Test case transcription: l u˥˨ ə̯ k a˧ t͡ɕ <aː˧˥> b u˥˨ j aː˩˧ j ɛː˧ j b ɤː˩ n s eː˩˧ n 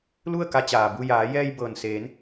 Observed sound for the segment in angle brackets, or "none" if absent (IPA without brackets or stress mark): aː˩